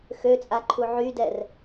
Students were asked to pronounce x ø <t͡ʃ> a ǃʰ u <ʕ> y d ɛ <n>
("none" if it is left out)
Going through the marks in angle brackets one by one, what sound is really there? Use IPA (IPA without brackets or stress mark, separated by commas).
t͡sʼ, ʕ, r